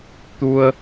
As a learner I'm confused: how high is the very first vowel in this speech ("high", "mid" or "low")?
high